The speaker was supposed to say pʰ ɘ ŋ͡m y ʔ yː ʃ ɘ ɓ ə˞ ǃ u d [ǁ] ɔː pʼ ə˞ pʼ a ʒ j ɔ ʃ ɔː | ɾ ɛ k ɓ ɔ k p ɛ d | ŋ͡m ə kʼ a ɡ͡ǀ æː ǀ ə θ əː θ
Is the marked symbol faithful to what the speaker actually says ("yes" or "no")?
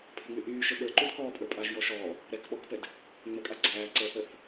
no